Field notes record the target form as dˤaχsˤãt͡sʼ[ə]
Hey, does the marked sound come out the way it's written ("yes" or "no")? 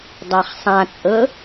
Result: yes